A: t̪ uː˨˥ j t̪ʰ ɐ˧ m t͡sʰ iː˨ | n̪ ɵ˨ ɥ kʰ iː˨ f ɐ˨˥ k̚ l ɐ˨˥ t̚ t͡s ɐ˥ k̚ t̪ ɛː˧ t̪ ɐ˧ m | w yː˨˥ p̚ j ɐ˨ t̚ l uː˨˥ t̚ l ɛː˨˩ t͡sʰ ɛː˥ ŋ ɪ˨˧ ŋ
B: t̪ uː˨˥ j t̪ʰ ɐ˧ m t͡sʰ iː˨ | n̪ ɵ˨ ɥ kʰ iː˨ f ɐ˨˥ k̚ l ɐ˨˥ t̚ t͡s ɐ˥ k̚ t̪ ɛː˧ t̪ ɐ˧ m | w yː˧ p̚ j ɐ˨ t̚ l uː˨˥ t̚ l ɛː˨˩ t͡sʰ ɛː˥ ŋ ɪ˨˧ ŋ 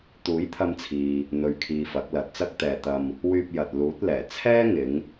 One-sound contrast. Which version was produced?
B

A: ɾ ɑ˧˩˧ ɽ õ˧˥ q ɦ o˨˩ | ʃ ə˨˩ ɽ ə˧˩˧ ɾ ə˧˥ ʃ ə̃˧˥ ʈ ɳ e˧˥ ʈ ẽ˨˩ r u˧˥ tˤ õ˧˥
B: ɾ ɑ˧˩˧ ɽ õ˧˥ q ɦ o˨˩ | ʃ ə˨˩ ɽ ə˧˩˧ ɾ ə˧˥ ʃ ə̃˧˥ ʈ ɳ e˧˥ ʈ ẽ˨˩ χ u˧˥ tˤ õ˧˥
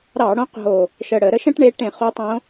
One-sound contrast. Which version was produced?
B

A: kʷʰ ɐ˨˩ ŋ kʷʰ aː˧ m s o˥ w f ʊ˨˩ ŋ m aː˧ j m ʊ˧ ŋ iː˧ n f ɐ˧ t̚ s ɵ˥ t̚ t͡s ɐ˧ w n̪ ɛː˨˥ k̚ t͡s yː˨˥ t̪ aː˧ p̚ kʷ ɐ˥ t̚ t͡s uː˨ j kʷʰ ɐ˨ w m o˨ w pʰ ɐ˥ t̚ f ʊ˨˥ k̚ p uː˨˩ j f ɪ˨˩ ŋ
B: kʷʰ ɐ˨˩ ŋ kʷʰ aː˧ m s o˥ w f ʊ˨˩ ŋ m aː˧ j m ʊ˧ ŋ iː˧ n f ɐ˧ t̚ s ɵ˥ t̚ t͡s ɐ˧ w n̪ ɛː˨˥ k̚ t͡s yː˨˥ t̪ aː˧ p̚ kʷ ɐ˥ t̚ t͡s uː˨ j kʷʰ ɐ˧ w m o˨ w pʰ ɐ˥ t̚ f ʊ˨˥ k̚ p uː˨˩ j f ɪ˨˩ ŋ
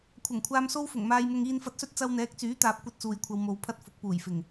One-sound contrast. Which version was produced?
B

